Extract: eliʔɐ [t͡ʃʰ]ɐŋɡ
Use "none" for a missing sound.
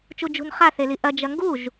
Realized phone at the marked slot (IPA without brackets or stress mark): d͡ʒ